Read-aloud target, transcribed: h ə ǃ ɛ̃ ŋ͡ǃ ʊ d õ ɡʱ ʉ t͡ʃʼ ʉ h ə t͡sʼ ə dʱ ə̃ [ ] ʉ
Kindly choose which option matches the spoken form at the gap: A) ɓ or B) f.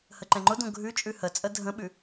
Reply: A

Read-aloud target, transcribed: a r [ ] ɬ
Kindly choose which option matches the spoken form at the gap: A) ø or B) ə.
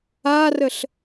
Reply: B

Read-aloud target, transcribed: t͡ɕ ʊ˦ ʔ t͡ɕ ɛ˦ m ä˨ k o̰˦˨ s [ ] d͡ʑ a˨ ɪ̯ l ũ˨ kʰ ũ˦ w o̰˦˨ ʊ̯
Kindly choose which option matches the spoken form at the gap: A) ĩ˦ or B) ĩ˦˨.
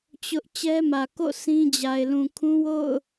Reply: A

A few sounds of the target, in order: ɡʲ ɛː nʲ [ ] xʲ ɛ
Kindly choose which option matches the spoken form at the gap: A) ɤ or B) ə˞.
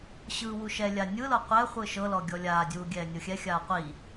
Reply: A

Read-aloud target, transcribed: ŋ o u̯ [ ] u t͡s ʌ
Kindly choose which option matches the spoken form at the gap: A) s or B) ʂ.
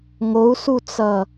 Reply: A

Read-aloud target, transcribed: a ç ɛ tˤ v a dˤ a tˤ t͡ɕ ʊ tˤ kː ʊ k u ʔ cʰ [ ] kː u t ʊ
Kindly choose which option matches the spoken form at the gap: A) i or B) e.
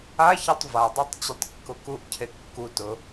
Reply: B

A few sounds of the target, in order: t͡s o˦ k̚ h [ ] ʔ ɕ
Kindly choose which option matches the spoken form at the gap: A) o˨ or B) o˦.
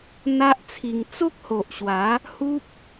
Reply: A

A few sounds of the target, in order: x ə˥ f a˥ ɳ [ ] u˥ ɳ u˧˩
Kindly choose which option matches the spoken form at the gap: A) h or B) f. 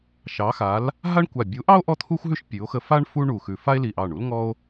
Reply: B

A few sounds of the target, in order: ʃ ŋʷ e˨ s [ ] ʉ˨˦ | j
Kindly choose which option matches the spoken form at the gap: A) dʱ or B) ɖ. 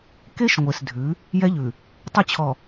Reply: A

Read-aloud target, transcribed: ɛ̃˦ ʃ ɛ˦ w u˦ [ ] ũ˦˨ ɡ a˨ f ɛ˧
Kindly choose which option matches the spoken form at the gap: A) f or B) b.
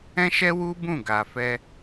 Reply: B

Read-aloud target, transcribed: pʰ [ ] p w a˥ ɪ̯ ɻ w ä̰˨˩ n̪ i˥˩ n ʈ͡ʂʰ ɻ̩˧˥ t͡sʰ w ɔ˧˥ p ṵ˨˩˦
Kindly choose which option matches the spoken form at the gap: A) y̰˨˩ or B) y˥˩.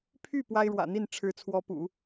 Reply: B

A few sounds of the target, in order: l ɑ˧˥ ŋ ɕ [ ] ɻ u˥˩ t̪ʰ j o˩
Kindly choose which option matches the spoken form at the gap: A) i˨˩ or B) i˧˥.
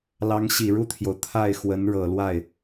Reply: A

